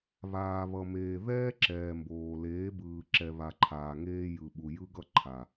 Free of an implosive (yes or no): no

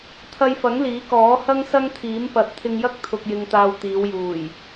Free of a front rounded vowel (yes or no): yes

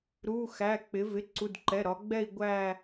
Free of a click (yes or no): no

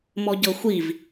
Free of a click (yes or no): yes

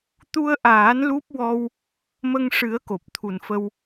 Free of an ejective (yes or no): yes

